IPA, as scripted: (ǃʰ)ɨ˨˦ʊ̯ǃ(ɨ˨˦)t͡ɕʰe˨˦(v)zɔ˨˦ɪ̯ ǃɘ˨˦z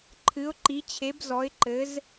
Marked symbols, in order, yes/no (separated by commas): yes, no, no